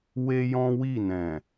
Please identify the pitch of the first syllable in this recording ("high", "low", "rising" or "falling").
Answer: high